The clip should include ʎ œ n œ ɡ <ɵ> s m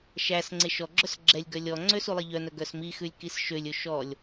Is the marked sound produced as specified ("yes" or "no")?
no